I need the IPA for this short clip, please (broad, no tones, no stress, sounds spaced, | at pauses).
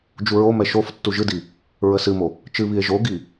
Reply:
d͡ʒ u ɹ o m ɛ ʃ o f tː u ʒ ɨ d i | ɹ ə s ɨ m o | t͡ʃ ɨ β i e̯ ʒ o ɡ i